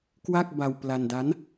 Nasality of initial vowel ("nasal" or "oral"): oral